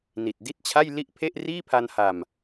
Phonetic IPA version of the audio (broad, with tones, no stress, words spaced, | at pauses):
ni˨˩t̚di˥˩t̚t͡ɕʰa˥˩j li˥˩ʔpʰe˥˩ʔ riː˥˩pʰa˧nha˨˩m